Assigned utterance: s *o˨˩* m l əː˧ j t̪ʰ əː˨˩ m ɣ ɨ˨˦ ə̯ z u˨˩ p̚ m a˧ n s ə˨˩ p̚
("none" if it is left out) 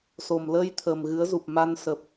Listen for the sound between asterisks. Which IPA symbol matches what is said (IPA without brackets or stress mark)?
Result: o˨˩